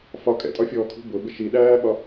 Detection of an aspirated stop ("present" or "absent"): present